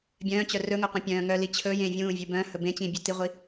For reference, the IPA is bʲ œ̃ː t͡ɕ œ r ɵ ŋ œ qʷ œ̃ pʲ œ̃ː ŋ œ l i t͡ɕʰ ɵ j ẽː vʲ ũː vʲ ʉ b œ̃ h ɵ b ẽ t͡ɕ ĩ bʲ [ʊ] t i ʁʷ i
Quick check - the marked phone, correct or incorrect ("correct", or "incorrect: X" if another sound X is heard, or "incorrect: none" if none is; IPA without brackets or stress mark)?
incorrect: ʉ